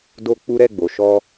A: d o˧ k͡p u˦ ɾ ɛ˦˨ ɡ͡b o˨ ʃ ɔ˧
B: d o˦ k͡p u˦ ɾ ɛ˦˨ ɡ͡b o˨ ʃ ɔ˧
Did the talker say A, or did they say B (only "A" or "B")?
B